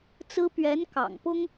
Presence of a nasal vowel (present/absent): absent